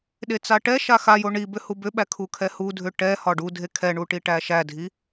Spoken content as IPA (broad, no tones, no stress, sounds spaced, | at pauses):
ɗ e t͡s a ʈ ɛ ʃ a x a j o ɳ i b ʏ h u b ʏ ɓ æ kʰ u kʰ ɛ h u dʱ ʏ ʈ ɛ h ɒ ɖ u dʱ e kʰ ɛ ɳ u ʈ i ʈ æ ʃ æ dʱ i